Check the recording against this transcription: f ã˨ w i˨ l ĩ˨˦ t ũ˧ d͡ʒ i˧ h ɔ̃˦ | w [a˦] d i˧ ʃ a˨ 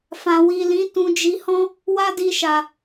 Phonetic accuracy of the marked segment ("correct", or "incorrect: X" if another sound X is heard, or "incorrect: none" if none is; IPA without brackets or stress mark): correct